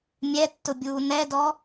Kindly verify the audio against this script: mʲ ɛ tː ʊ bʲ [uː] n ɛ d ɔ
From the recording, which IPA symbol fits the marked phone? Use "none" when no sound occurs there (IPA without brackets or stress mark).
uː